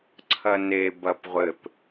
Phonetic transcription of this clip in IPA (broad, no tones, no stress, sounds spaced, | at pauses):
ǀʰ ɐ n e b ɐ p ʁʷ ɘ p